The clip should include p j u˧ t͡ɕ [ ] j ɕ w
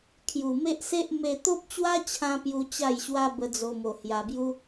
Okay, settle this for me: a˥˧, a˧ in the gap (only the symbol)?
a˥˧